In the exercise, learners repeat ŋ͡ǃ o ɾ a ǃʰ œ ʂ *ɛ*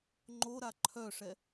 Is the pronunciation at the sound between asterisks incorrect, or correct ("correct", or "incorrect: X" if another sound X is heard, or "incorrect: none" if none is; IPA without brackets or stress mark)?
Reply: correct